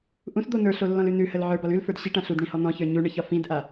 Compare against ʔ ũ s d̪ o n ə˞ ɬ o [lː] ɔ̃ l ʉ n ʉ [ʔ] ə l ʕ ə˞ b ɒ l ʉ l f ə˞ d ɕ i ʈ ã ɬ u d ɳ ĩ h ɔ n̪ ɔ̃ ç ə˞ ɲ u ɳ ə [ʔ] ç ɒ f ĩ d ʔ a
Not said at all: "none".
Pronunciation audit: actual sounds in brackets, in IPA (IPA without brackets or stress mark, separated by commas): lː, h, none